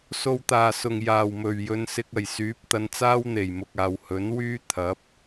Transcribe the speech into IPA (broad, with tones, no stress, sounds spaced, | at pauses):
s o˨ w t̪ aː˨˩ s ʊ˨˩ ŋ j aː˨˩ w m ɵ˨˩ ɥ j ɵ˨˧ n s ɪ˧ k̚ ɐ˨˩ j s yː˨˥ p̚ t̪ ɐ˧ n t͡s aː˥ w n̪ e˨˩ j m ʊ˨ k̚ aː˨ w h ɵ˨˥ n w yː˥ t̪ʰ ɐ˨˥ p̚